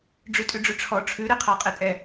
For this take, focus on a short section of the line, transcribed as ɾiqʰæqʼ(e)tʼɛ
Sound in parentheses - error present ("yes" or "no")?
yes